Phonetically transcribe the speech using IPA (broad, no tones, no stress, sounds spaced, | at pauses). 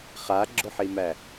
χ a ɡ͡ǁ ʊ ħ i m æ